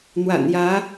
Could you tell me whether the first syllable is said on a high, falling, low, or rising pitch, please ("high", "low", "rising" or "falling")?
low